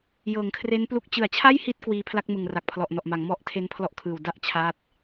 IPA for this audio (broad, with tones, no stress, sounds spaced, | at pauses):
j ɤː˩˦ ŋ kʰ r e˦˥ n p l u˦˥ k̚ t͡ɕ ɯ˨˩ a̯ t͡ɕʰ a˥˩ j h i˦˥ t̚ k w iː˧ pʰ l a˥˩ k̚ m ɯ˨˩ ŋ r a˨˩ k̚ pʰ l ɔ˨˩ ʔ n ɔ˨˩ ʔ m a˩˦ ŋ m ɔ˦˥ ʔ tʰ e˦˥ n pʰ l ɔ˦˥ ʔ kʰ ɯː˨˩ w d a˥˩ ʔ t͡ɕʰ a˦˥ t̚